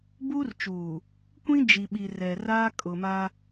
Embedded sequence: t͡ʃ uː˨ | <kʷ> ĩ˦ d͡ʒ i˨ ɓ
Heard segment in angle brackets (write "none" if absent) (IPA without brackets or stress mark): kʷ